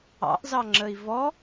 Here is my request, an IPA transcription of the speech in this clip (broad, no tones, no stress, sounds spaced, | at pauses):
ɑ̰ ʔ z ɑ ŋ͡ǁ ə i̯ v ɔ